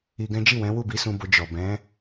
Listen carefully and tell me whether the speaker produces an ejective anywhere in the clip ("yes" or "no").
no